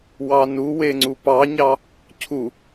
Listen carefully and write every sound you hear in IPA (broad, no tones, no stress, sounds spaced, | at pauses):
w ɑ n u w e ŋ͡ǀ u p ɑ ɲ ɑ | cʰ u